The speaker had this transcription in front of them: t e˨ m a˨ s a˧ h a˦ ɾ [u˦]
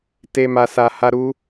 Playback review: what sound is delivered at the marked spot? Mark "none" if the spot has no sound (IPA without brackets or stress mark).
u˦